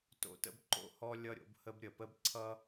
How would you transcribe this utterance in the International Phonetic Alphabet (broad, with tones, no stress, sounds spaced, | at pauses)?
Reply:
t o̰˥ t ə̰˥ b ǃ o̰˥ h ɔ˥ lʲ ʌ˥ ɾʲ o̰˥ b h ə˥ b ɾʲ ə˩ p ə˥ b ǀʰ ʌ˥